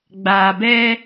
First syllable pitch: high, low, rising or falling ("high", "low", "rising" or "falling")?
low